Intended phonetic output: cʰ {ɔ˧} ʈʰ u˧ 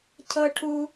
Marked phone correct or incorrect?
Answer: incorrect